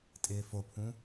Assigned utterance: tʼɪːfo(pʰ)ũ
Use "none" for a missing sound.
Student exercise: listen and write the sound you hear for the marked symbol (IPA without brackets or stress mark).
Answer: pʰ